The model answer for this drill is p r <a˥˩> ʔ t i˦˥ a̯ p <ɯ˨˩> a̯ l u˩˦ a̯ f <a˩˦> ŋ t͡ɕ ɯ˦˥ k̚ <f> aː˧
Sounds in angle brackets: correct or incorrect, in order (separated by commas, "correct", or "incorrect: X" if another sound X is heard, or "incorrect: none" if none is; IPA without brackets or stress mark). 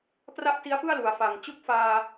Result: correct, incorrect: ɯ˥˩, incorrect: a˨˩, correct